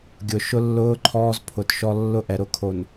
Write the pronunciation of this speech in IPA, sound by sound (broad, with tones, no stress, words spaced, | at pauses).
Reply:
ɡʲʊ˨ ʃʊ˦lːʊː˦ ǃʰɔː˦zpʰʊ˨tʃɔ˦ lːʊ˦ʔɛ˨ɾʊ˦kʰo˨n